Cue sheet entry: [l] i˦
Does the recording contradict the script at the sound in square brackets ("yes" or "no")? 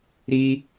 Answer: yes